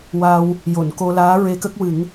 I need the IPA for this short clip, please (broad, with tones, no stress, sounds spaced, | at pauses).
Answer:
w a˧ w | j o˨˩˨ n k o˧ l aː˧˥ ɹ e˧ k ə˦˥ k̚ w ɨ˨˩˦ ŋ